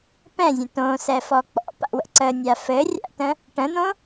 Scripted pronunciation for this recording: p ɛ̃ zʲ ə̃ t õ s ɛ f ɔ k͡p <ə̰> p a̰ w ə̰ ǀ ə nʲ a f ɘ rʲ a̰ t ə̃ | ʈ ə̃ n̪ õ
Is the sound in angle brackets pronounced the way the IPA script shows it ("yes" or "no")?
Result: no